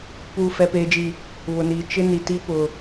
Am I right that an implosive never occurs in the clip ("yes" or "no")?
yes